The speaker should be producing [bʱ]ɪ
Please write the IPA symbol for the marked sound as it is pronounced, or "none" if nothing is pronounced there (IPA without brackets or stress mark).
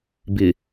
b